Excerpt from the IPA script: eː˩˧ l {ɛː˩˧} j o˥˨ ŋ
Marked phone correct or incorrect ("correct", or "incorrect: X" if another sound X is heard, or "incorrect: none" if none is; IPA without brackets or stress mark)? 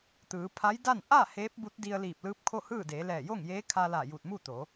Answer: incorrect: ɛː˧˩